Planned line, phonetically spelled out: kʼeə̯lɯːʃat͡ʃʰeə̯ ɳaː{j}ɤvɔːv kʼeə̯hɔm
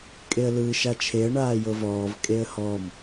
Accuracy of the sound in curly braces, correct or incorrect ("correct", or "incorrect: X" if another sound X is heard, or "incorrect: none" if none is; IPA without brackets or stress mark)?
correct